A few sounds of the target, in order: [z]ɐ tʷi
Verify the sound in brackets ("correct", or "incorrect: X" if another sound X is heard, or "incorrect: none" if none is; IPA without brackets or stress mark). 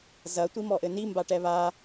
correct